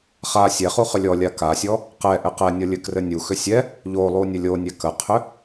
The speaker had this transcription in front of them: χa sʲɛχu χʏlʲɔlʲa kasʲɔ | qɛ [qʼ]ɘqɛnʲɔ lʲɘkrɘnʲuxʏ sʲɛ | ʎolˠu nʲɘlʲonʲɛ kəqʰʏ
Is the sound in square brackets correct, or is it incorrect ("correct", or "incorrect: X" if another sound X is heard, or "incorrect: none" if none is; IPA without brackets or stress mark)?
incorrect: ʔ